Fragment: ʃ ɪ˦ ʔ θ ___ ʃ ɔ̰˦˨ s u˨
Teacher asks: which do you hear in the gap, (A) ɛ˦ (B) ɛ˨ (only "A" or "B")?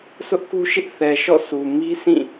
B